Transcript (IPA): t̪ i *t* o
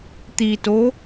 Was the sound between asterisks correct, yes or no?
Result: yes